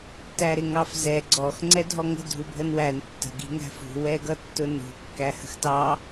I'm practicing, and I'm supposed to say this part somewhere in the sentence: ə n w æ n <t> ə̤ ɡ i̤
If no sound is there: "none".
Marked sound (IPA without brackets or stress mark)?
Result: tː